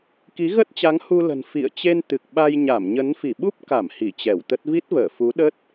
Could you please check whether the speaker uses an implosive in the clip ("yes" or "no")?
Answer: yes